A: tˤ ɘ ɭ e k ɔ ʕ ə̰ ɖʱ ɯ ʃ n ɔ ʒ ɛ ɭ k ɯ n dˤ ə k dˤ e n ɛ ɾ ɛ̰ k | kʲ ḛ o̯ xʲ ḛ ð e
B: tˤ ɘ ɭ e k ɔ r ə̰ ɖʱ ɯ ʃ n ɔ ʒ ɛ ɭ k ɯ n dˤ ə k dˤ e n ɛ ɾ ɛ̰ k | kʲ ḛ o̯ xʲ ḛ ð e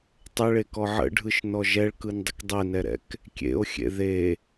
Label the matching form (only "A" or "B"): A